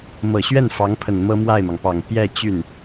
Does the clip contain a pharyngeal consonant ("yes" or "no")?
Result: no